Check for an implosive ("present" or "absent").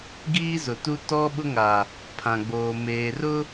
present